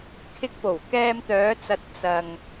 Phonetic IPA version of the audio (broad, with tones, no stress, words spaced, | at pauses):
kʰɪ˧k̚po˨˩w kɛː˧mt̪œː˨˧t͡sɐ˨t̚ t͡sɐ˨ŋ